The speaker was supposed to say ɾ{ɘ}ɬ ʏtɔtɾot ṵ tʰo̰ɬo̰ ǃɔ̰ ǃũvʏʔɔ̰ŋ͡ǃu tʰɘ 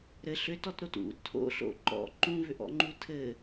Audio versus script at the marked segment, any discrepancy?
no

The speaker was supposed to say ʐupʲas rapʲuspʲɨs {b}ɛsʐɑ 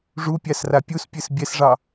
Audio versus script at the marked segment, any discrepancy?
yes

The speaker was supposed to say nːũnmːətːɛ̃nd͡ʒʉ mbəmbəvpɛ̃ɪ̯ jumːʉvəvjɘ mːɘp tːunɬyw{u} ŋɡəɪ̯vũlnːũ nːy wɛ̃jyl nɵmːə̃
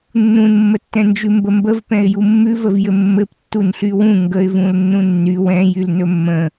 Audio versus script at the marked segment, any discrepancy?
yes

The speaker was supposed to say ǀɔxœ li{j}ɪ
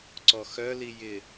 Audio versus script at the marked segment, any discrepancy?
no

